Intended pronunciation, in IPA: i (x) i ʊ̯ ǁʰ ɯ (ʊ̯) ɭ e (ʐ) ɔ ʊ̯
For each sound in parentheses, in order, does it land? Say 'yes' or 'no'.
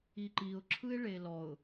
no, no, no

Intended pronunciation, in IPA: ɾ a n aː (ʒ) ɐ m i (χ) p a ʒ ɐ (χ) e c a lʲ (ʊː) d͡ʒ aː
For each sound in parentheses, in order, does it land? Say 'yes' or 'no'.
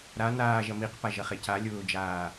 yes, no, yes, yes

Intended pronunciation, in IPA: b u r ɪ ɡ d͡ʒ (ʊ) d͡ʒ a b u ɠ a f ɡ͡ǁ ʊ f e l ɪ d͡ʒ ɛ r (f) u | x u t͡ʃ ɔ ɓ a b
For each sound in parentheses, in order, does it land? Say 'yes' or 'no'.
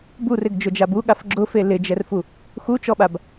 yes, yes

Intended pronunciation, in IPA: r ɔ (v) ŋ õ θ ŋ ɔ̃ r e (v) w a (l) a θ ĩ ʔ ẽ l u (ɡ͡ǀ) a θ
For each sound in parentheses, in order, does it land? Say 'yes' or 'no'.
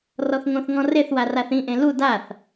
no, no, no, no

